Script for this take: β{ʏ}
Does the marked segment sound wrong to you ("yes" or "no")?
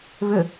no